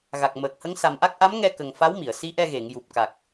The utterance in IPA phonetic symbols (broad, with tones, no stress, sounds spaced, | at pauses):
ɣ a˨˩ k̚ m əː˨˩ k̚ h ə˧˥ ŋ s a˨˩ m ʔ a˦˥ k̚ ʔ a˧˥ m ŋ ɛ˧ k ə˨˩ ŋ f a˧˥ w m i˨˩˨ ə̯ s i˧˥ ʔ ɛ˧ ɣ e˨˩˨ ŋ j u˨˩ p̚ k a˨˩ k̚